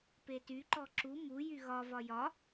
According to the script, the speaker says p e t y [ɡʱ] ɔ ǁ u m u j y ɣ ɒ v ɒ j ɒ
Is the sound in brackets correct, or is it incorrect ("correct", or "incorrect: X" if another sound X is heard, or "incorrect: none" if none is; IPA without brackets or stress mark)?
incorrect: ǃ